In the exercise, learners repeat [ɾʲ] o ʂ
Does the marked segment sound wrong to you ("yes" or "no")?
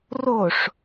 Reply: yes